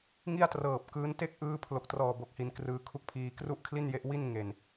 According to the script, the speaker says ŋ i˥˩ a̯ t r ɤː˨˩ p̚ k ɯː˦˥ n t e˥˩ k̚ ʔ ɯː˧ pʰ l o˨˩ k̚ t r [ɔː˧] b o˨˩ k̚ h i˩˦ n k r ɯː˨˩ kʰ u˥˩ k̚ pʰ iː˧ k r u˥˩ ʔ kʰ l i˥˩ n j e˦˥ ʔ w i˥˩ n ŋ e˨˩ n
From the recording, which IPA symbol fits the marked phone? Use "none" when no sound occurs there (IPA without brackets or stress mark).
ɔː˨˩